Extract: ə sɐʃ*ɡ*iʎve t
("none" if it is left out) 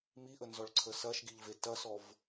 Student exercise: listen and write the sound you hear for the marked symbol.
ɡ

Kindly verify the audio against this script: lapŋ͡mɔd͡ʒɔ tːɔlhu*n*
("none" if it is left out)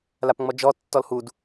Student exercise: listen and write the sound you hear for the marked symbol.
d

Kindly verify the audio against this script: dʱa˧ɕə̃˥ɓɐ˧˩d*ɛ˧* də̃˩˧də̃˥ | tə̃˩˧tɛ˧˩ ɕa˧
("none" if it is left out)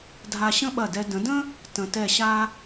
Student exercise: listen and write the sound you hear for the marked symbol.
ɛ˧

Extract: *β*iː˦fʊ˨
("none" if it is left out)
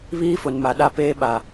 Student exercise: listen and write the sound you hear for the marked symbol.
β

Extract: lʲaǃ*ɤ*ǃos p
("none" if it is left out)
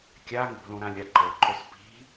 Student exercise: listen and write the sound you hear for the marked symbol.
ɤ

